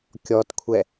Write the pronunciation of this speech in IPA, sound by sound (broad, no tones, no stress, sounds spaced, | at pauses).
kʲ ɔ t kʷʰ ɛ